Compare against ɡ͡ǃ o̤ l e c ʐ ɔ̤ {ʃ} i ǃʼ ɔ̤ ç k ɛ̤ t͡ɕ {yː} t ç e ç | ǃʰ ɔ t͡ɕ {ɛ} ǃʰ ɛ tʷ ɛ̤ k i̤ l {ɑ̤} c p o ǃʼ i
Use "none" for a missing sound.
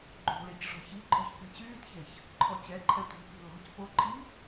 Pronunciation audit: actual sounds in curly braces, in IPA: ç, yː, ɛ, ɔ̤

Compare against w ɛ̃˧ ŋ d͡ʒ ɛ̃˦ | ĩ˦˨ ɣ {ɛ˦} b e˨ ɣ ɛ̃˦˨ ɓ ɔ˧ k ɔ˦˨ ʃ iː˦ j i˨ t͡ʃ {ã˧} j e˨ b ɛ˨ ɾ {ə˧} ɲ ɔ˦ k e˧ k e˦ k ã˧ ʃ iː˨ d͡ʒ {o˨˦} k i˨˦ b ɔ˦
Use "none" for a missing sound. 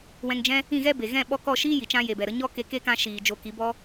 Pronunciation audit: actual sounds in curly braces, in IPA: ɛ˦, ã˧, ə˧, o˨˦

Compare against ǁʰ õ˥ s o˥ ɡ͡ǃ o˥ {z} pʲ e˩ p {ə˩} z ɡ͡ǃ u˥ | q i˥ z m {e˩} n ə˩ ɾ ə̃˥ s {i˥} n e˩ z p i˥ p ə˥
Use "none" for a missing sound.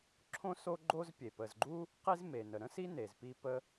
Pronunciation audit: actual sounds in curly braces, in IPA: z, ə˩, e˩, i˥

